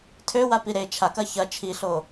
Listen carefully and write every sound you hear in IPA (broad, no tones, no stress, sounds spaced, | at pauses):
tʰ ø w a p i ɾ e t͡ʃʰ a k ɐ ç ɐ t͡ʃʰ i ɬ o